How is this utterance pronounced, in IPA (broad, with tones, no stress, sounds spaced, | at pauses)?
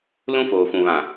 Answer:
l ũ˦ f oː˨ f ũ˨ β ã˨